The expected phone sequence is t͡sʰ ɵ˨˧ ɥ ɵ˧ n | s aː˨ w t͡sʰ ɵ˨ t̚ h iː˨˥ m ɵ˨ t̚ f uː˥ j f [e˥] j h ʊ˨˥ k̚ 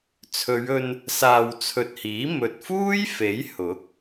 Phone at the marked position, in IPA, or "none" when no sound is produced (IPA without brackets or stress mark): e˨˥